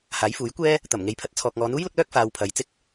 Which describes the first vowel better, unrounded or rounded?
unrounded